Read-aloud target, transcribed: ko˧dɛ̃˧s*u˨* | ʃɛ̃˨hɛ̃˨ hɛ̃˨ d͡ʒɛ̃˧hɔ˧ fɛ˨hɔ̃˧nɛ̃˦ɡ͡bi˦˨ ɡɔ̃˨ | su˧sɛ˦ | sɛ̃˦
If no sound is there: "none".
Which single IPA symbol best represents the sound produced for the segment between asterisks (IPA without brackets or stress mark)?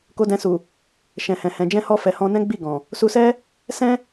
u˨